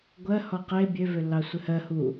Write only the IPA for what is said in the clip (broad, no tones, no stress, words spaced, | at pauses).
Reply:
ɡʷɜ hɔqe bʲø vølːɑsʷɘhɜ hu